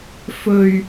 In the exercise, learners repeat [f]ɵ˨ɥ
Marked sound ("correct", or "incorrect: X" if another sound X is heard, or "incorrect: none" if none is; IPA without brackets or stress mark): correct